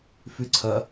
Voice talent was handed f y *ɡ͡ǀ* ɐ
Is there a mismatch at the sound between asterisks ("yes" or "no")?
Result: yes